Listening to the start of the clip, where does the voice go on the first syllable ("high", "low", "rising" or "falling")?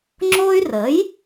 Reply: high